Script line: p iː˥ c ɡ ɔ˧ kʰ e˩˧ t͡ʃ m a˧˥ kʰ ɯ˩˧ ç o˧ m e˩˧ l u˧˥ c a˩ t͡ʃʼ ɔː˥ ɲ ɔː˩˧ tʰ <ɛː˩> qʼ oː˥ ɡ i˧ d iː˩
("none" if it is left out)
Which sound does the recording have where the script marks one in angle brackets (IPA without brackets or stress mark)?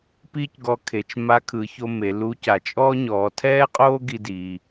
ɛː˥